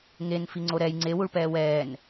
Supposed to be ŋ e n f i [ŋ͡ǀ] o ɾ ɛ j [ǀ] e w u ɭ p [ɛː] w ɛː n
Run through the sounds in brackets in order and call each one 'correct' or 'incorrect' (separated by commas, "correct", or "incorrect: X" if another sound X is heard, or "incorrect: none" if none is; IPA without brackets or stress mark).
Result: correct, incorrect: ŋ͡ǀ, correct